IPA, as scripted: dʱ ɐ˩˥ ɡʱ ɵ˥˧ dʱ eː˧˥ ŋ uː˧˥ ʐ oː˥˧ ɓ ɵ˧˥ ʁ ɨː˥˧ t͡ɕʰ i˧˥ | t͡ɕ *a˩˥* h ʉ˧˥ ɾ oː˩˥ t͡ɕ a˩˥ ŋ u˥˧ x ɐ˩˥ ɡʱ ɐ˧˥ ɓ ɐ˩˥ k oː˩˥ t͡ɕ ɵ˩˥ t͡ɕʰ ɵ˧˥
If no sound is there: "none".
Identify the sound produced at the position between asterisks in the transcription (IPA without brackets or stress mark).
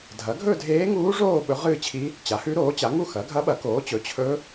a˩˥